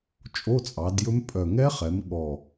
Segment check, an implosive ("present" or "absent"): present